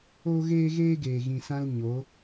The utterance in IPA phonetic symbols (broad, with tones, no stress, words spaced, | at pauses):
oː˦ɣeː˦ɣeː˦ ɡeː˨ ɣĩ˨sã˧l ɲo˨˦